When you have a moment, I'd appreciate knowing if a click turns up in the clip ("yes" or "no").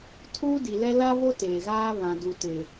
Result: no